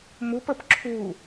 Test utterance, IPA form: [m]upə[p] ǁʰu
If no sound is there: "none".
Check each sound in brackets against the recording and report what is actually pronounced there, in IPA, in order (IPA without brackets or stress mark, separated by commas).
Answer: m, p